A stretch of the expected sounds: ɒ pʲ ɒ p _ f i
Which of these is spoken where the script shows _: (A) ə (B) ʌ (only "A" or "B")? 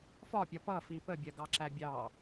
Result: B